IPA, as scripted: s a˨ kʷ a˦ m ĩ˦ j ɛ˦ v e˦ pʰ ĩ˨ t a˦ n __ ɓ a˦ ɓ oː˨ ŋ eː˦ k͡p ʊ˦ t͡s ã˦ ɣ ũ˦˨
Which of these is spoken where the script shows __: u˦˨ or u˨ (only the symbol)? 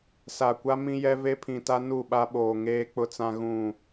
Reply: u˦˨